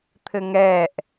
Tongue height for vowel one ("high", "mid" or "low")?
mid